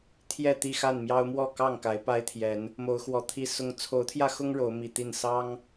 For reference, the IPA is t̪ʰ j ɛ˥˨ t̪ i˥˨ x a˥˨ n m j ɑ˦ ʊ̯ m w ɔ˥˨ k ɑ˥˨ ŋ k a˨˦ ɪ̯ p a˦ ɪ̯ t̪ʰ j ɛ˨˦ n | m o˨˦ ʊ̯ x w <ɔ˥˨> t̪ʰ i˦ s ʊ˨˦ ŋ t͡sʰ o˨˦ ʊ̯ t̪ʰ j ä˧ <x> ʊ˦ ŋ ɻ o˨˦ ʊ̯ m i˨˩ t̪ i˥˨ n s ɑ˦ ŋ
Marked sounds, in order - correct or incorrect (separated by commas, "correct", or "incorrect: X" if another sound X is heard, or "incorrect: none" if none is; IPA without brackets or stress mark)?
incorrect: ɔ˨˩, correct